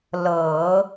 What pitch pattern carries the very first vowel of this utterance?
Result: low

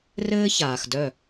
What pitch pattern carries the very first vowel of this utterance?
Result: high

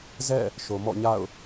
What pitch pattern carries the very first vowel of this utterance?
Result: falling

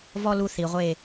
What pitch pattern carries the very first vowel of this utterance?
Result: high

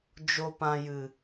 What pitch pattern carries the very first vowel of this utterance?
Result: low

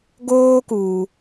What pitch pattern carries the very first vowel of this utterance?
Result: high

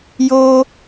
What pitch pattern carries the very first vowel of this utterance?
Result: high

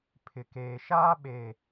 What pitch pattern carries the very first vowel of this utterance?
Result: low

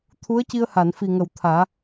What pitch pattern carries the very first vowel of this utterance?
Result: rising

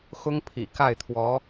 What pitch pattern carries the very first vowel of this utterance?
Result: high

